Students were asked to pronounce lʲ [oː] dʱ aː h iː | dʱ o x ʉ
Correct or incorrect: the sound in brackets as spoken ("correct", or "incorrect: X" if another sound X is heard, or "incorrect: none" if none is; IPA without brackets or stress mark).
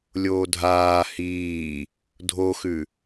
correct